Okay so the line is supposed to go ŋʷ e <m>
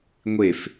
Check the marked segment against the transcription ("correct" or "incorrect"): incorrect